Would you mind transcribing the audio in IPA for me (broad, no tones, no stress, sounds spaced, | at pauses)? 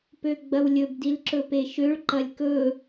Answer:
p ø ɡ͡b ɐ w lʲ ɵ b d i l ǁ ɵ p e ʃ ø ɭ ǃ ɐ lʲ k ɵ